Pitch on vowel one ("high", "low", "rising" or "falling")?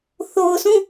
low